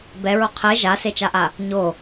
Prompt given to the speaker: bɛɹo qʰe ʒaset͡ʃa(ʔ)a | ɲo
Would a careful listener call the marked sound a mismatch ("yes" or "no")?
no